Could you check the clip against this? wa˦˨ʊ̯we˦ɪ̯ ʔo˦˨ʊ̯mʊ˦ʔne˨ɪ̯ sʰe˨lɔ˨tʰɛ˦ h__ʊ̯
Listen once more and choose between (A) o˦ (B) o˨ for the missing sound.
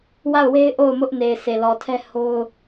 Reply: A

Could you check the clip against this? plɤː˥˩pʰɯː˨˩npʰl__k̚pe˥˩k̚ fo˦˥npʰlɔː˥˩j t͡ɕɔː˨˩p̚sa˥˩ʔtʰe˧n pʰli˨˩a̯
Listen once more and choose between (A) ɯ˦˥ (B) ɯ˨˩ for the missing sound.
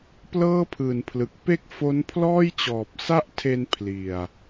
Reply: B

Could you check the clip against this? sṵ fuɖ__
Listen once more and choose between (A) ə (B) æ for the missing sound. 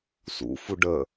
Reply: A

